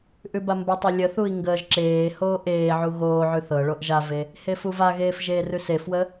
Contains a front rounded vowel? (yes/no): no